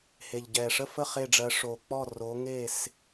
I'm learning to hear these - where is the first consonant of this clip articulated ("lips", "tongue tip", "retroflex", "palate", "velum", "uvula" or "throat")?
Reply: throat